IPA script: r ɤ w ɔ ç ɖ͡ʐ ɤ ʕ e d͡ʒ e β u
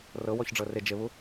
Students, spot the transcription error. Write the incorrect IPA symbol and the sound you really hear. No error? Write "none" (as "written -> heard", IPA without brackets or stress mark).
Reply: ʕ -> r